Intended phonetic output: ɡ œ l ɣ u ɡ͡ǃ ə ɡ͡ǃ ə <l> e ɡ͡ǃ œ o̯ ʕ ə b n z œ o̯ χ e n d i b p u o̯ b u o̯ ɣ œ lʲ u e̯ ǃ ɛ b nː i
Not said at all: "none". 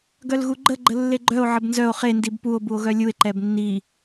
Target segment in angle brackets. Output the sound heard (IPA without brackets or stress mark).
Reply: lː